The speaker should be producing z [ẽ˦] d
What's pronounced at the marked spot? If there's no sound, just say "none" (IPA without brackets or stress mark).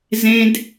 ẽ˦